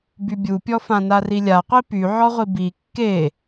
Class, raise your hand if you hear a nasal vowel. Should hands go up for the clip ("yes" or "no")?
yes